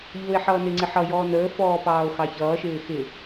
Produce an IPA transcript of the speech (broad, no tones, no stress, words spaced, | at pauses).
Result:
ʎʊːe̯ħʌːnɪŋ͡ǀɪ ħʌjɔː nəːfɔː pɑːo̯xɑçʌːʃɪː xɪ